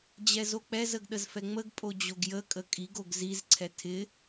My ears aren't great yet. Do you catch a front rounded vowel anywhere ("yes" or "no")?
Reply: no